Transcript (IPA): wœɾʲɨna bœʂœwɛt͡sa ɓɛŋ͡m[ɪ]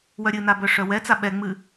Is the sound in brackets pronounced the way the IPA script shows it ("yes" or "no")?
no